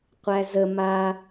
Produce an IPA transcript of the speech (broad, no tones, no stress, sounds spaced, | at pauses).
qʷ æ z ə m a